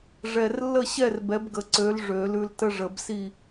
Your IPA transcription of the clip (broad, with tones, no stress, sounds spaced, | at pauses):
ʐ ɛ˨˩ r lː ə˥˨ ɕ ɛ˥˨ r b ɛ˨˥ b ɡ ə˨˩ ǀ ø˨˥ l ʐ ø˨˩˦ l ʉ˧ l t ə˥ ʐ ə˨˩˦ b s i˥˨